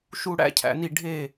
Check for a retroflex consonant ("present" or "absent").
present